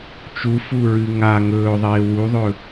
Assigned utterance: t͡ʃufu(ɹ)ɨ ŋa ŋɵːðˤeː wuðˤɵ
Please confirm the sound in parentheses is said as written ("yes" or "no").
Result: yes